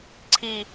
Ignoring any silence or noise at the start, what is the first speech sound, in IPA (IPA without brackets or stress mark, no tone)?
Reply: ǀʰ